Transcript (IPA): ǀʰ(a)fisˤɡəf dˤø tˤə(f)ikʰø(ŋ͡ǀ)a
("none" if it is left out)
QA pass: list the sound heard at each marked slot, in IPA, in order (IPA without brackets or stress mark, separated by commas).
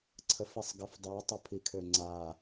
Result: ə, pʰ, ŋ͡ǀ